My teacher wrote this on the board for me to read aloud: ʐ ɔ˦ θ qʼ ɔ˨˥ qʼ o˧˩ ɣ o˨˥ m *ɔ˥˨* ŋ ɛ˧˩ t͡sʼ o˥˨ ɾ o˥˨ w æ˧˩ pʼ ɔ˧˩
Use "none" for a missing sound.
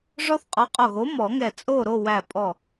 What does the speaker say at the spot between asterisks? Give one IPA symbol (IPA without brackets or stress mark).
ɔ˨˩˦